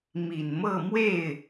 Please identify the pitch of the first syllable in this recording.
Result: low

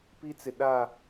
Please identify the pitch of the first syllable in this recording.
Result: high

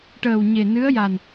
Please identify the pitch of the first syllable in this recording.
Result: low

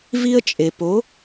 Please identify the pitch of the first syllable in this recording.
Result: high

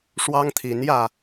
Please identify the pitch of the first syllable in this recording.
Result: high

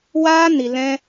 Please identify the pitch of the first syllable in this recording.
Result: high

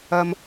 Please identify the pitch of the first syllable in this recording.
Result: low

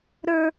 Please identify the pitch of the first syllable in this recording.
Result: high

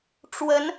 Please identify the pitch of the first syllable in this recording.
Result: rising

